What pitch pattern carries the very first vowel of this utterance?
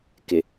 low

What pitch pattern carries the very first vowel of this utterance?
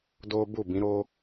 high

